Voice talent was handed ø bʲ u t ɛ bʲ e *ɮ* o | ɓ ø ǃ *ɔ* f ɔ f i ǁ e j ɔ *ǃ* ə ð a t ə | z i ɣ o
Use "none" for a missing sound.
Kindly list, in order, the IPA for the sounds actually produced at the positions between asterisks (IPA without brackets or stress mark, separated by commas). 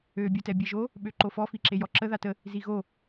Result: ʒ, o, ǁ